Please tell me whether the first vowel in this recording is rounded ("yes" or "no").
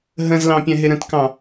no